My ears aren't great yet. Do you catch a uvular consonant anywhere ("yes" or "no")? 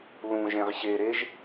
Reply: yes